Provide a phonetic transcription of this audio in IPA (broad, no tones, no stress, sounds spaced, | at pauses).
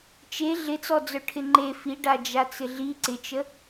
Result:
t͡ʃ e ɮ ɪ t͡s ɔ d͡z œ ʈʰ ɪ ŋ͡ǃ e f i ɖ a d͡ʒ a t͡s ɪ ɮ i ǀ ɪ t͡ʃ ə